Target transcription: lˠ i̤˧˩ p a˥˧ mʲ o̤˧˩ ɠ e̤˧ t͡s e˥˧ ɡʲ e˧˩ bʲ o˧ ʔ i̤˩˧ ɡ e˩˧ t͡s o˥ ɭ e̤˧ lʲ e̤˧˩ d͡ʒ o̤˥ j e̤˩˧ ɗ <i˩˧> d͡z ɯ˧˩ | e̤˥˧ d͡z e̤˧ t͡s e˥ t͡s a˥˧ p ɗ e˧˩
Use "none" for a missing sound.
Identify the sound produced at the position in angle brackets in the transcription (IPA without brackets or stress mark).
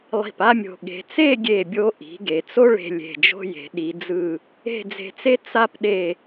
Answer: i˩˧